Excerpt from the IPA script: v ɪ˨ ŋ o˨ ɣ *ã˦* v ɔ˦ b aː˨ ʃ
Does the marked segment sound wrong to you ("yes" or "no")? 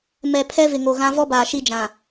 no